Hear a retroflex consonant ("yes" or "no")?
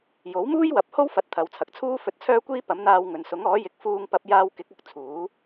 no